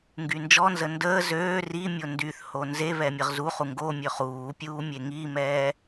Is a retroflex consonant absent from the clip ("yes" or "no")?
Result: yes